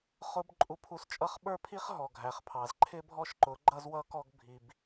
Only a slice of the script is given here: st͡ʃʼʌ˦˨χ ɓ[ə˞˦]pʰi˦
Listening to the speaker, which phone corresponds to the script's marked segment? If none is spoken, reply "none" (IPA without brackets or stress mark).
ə˞˦